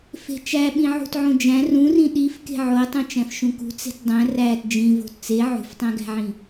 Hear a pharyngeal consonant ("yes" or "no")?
yes